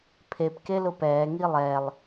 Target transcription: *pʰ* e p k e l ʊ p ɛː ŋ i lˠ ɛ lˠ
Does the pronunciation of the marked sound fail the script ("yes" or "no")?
no